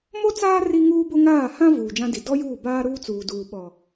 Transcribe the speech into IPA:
m o˦ t͡s aː˦ r i˦ ŋ uː˦ b ʊ˦ ŋ aː˦˨ h ã˦ v uː˨ d͡ʒ ã˦ d i˨ d ɔ˦ j uː˦˨ b aː˦ ɾ uː˦ t͡s uː˨ d uː˨ ɓ ɔ˨

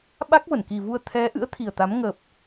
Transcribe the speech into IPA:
ɓ a˦˥ k̚ v ə˧˩ n k i˨˩ v u˧ ə̯ t̪ʰ ɛ˨˦ ʔ ɨ̰˧˥ ə̯ t̪ʰ i˨˩ ə̯ t̪ a˨˦ m ŋ ə˨˩ p̚

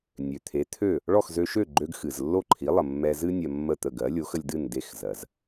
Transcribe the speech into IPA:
nʲ ø˩ t̪ʰ e˩˥ t̪ʰ ø˥˩ | ɭ ɔ˥˩ x z ø˧ ʃ ø˥˩ ɡ͡ǃ ø˧ ɡ x ɨ˩ z lː o˥˩ ǃʰ i˩˥ lˠ ə˩ mː ɛ˧ z ɨ˥ nʲ ɜ˧ mː ə˥˩ t̪ ə˥˩ ɡ ɜ˩˥ lʲ o˩˥ x ə˧ lʲ d ɨ˥˩ n d e˥˩ x z ɜ˩ z

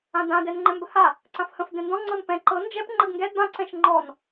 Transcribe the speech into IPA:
ã d ã d ɛ n ŋ͡ǃ ɛ̃ m b ə h a | ǀ ã f h ə̃ f d ɛ̃ n d ɔ̃ ŋ͡ǀ ɤ n p ɛ̃ ǃ ɤ n d͡ʒ ɛ p ŋ͡ǃ ə ɡ ŋ ɡ ɛ d b ã ǀ ɛ̃ ʃ ŋ͡ǃ ɔ n

